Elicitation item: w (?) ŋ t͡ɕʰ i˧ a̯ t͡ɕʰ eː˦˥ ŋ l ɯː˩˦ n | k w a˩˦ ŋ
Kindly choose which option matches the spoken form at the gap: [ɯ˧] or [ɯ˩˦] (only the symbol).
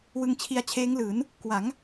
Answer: ɯ˧